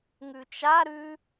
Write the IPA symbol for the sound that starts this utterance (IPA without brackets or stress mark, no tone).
ŋ